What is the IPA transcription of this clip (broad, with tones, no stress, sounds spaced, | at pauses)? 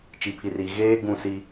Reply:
t͡ʃ i˨ pʰ i˨ r iː˨ ɣ eː˦ ɡ ũ˦˨ s i˦